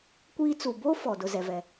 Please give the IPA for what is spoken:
kʷ iː˦ t͡s u˨ b o˦ f ɔ˨ d ʊ˦ z ɛ˨ v ɛ˨

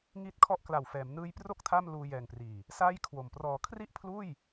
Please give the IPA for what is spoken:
ŋ i˦˥ t̚ kʰ ɔ˦˥ ʔ k l a˨˩ w f ɛː˩˦ m n ɯː˦˥ j p r o˥˩ k̚ tʰ a˥˩ m l uː˧ j ɛː˨˩ ŋ p r iː˨˩ | s aː˥˩ j kʰ w o˨˩ m p r ɔː˩˦ kʰ r i˥˩ ʔ pʰ l uː˥˩ j

